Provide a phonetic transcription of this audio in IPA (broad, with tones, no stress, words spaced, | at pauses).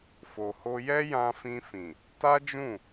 fo˨ho˧jɛ˦ jã˧fĩ˧fĩ˨ | ta˦d͡ʒũ˦˨